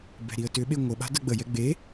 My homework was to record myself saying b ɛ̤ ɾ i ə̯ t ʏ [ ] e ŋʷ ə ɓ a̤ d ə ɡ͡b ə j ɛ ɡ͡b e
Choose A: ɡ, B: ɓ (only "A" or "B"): B